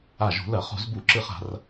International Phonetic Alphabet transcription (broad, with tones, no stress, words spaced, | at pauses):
a˧˩ʒṳ˧˩˧lɐ˧˩˧χṳ˧˩˧z bu˧˩˧ǁɨ˧˩χa̤˧˩˧r